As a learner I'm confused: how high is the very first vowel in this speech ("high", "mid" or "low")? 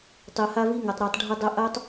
mid